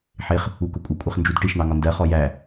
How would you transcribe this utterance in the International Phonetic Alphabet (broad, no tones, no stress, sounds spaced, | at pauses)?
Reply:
ħ ɪ χ | u k ʊ kʷʼ ɪ kʷʼ i χ n d͡ʒ u d ʈ i ʃ n̪ ɑ ŋ ɒ n d ɜ χ ɔ j æ